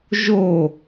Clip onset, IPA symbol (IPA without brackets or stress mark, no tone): ʒ